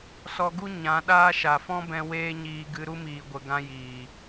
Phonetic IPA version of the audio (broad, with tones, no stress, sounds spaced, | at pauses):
s ɔ˧ ɡ u˦ ɲ ã˨˦ ɗ aː˦ ʃ a˨ f ɔ̃˦ b ɛ̃˧ w eː˦ ɲ iː˧ ɡ ɨ˧ ɾ u˦ m iː˨ ɡʷ ə˨ ɡ ã˧ j iː˨